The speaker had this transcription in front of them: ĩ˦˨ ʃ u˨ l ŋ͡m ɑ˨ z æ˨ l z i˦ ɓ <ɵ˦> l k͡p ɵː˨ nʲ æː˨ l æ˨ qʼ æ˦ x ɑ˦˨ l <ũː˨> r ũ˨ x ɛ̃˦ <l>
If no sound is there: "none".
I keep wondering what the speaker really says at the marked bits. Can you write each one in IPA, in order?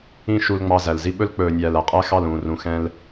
ɵ˦, ũː˨, l

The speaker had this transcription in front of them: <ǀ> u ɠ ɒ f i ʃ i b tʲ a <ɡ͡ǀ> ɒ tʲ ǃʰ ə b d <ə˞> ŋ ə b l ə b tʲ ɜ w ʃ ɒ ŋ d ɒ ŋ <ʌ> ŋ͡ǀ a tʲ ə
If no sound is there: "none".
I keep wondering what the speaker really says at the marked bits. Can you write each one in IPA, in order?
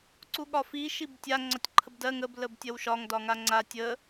ǀ, ŋ͡ǀ, ɜ, a

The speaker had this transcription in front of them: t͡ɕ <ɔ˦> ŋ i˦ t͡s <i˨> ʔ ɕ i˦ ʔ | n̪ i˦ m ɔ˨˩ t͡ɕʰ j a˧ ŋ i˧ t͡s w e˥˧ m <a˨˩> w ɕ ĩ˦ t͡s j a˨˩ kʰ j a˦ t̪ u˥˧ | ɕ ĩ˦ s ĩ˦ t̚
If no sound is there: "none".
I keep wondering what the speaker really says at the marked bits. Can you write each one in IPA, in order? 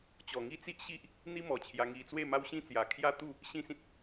ɔ˨˩, i˦, a˦

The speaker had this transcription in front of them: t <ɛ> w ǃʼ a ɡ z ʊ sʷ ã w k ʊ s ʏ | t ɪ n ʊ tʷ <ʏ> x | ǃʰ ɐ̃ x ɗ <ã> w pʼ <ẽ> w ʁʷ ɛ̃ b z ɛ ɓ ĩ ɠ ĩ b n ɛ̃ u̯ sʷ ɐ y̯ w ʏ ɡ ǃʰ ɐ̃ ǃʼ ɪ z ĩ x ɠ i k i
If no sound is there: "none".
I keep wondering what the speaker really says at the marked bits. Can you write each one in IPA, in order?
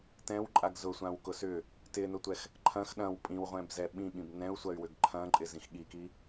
ɛ̃, ɛ, ɐ̃, ĩ

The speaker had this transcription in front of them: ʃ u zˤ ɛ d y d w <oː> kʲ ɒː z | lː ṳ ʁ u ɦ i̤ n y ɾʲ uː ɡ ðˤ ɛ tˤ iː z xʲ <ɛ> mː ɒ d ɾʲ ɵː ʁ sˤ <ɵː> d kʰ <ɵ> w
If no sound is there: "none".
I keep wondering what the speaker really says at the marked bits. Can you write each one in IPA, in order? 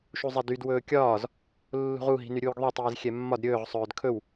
ɵː, ɛ, ɵː, ɵ

